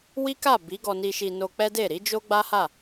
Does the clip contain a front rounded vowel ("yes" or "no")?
no